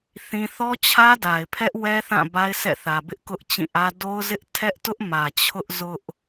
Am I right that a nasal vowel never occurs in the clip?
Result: no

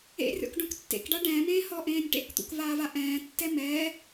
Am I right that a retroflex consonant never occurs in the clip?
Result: no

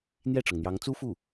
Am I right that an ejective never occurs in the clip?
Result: yes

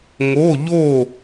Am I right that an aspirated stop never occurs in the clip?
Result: yes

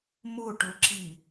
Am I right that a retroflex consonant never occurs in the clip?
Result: no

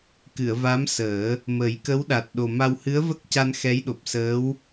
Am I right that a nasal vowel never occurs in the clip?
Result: yes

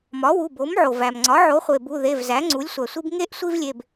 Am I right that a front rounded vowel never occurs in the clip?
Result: yes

